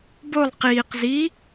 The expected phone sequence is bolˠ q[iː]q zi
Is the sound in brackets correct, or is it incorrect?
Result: correct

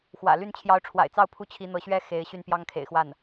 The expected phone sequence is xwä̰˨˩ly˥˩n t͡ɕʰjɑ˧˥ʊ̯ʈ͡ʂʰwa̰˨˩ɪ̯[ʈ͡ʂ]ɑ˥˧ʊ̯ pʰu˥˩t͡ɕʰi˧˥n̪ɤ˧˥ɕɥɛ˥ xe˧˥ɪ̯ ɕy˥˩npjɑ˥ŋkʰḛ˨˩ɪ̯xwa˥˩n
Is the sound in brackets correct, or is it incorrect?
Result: incorrect: t͡s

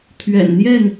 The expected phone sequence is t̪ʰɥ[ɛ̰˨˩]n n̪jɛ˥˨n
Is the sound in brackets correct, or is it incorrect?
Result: correct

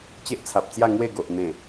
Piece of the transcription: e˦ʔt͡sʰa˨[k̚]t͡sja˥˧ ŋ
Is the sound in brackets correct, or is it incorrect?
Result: incorrect: p̚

